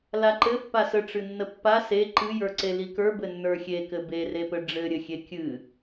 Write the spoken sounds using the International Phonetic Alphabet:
laǃɘ pːasə ʈ͡ʂɨnːəpːa se ǃɨjə˞ ǀelikə˞ bɘnːə˞xʲekɘ berepɘ ɖ͡ʐɘɾʲɘxʲe kʲɨ

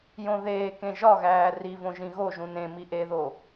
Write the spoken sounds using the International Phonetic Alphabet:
jõðeːkẽ ʒɒɣæː rivõ ʒĩɣoʒũ nẽmi ʔeðo

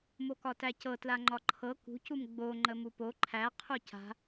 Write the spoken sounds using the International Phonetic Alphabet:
mokɒtæcɤ tlaŋ͡ǃɒǃʰɤ kṳcum ɡ͡bo ŋ͡ǃəmupo ǃʰæ qʰuca̤

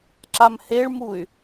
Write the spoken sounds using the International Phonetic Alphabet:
ǁamheɭmuy̯

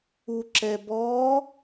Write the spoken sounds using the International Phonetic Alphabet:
uǁɛ bɔ

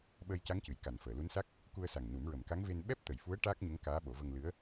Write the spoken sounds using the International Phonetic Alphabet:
ɓəː˧jca˧˥ŋcɨ˨˩˨j ka˨˩nfəː˨˩˨ lu˧˥nsa˦˥k̚ | ku˧ə̯sa˨˩ŋnu˨˩˦mɹə˨˩m ka˧˥ŋve˧n ɓɛ˦˥p̚t̪ə˨˩jfu˧˥ə̯ ʈaː˦˥k̚ɲə˧˥ŋ kaː˧˥ɓo˨˩˦və˧ŋlɨ˧˥ə̯

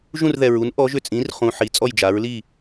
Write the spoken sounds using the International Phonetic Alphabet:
ʒũ˥˧rðɛ˧ɹu˧˥n ʔɔ˧˥ʒʏ˥˩ t͡sʼĩ˧˥rχũ˧ ħi˧˥ t͡sʼɔ˥˧jd͡ʒa˧˥ɹli˥˧

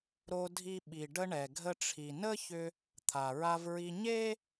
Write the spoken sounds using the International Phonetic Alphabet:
ɾo˧dʱi˧ ɓi˩ɖə˧ɳɛ˩ ɡʱə˧ʈ͡ʂʰi˩nə˥çʏ˧ | t̪ʰa˩ɹa˧vɹi˧ ɲe˥

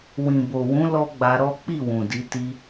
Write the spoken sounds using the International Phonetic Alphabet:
wĩ˨bo˨wũ˨˦ lɔ˦ɡ͡ba˧ɾɔ˦ k͡pi˦˨wũ˨di˧ ti˧

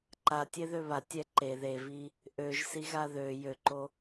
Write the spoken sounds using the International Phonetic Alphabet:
ǃatʲeðø βatʲɛ ǃe ðevi | ʔøʒsiɣa ðø jøǃo

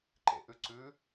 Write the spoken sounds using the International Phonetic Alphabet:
ǃḛʔʉǀʉ

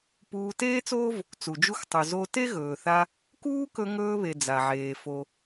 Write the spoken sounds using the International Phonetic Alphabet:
puː˧teː˥t͡soː˥v | t͡su˩d͡ʒu˧xtˤʉ˩ zo˧ te˥ɣɵː˩θa˧ | kuː˥kɵ˧ ŋɵː˧βe˩ d͡za˩ʕeː˩ fo˩

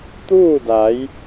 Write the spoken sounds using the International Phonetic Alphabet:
t̪uː˥˨da˩˧j

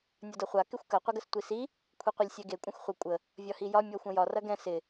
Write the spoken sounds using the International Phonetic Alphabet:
nʲɒdɤχʷa kɪxʷkɐ qʷɐɡəstʷisi | kʷʰeqʷɐlʲsʲɛɡe kʷʼɐ̃xʷχʷɪ kʷʼə | vʲɒhijɒ mʲɔxʷɐ̃jɒr ɐɡɛ̃ sɪ

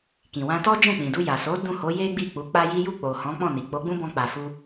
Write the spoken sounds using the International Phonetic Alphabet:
kĩ˨wã˧tɔ˦d͡ʒɛ̃˦˨ k͡pĩ˨du˧ ja˨so˨˦ dũ˦˨ho˨˦je˦ɡ͡bi˦˨ k͡pu˨˦k͡pa˦ji˦ ju˦˨k͡po˨ hɔ̃˨˦ k͡pɔ̃˦˨ni˨ k͡po˨˦ɡ͡bũ˦bɔ̃˧ k͡pa˨fu˧

